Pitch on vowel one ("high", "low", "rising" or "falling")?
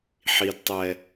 low